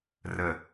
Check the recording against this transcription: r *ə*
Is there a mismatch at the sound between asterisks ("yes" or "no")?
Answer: no